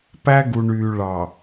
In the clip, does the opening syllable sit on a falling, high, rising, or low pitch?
high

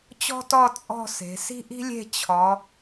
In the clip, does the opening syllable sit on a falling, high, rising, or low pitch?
high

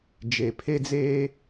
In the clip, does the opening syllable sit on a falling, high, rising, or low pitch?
low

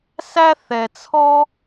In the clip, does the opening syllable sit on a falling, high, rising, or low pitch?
high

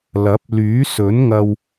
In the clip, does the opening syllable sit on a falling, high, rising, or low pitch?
rising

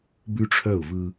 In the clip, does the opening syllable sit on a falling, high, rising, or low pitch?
high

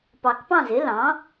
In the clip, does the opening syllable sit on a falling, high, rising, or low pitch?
low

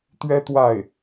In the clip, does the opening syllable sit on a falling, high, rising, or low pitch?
high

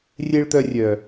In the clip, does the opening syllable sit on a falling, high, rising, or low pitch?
high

